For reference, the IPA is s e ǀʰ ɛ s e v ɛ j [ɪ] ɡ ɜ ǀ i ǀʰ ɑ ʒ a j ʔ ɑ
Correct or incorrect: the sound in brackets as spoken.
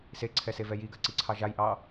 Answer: incorrect: i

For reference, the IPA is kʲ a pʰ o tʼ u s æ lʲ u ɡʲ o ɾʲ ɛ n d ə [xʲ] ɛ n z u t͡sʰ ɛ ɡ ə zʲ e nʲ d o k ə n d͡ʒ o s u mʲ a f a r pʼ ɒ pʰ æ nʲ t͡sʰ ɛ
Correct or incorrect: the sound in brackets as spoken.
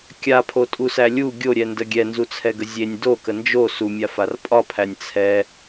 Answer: incorrect: ɡʲ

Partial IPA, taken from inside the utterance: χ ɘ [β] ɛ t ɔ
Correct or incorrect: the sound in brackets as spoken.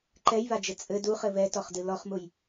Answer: correct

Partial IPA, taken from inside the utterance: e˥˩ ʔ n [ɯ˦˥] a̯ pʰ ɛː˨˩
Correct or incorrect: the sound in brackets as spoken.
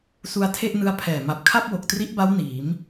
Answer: correct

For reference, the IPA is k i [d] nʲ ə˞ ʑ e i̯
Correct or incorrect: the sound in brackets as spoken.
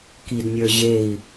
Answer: correct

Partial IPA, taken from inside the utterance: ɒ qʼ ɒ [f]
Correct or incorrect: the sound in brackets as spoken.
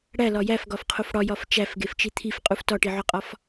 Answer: correct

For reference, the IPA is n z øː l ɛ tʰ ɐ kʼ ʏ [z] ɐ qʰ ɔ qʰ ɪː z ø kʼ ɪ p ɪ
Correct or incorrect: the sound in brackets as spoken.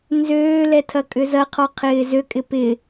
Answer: correct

